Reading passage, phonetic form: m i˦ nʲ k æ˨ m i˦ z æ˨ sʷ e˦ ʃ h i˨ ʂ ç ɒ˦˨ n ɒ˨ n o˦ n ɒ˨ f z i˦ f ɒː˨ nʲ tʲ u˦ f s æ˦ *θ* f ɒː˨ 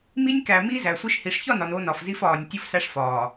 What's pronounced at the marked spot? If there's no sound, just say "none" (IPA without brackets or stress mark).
ʂ